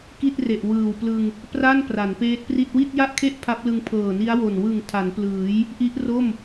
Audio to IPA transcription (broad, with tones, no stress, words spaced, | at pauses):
ki˥˩t̚re˨˩ʔ wɯː˨˩wplɯ˧ŋ | pra˥˩n pra˩˦npeː˦˥t̚pri˥˩t̚ wi˥˩t̚ja˥˩ʔkʰe˥˩ʔ pʰa˦˥p̚lɯ˧ŋ pʰɤː˨˩ni˦˥a̯wo˨˩n wɯ˨˩ŋ tʰa˩˦nplɯː˩˦j | ʔi˦˥ʔro˥˩m